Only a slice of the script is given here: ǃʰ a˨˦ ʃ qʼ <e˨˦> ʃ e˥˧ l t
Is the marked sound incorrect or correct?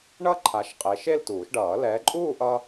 correct